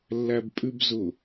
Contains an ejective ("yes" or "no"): yes